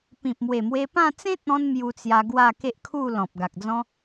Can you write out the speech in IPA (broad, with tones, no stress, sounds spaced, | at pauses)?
p ĩ˨ p̚ m w e˨˩ m w e˧ p ã˥˧ t͡s ẽ˦ t̚ ɔ̃˧ n m j u˧ t͡s j a˧ ɡ w a˥˧ k e˦ ʔ kʰ u˥˧ l ɔ̃˨ p̚ ɡ a˨ k̚ d͡z ɔ̃˦